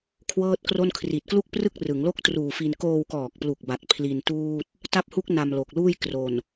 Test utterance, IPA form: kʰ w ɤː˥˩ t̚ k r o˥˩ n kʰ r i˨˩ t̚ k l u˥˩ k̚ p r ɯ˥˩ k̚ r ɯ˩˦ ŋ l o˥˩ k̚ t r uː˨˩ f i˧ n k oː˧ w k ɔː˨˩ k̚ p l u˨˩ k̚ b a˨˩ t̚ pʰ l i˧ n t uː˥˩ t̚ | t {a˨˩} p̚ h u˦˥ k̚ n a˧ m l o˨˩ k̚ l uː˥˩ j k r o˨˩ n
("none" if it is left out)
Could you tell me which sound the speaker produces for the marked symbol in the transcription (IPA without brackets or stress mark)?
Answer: a˦˥